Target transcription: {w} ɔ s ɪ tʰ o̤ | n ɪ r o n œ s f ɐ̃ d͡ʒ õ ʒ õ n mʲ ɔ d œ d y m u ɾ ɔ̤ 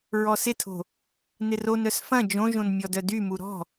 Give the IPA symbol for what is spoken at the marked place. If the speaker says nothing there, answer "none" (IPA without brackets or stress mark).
ɹ